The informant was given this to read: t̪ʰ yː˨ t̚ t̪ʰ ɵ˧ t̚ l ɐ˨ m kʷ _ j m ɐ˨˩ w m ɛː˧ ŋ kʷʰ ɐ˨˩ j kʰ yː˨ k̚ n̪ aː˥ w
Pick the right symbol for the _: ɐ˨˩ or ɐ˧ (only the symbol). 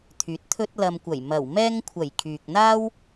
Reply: ɐ˨˩